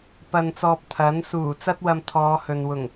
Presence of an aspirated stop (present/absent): present